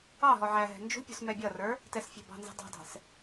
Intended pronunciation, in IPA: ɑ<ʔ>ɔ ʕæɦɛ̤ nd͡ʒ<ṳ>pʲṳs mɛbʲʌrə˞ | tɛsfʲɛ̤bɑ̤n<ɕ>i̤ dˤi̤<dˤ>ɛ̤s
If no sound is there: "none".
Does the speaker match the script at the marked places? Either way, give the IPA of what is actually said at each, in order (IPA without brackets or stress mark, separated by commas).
ɦ, ṳ, z, dˤ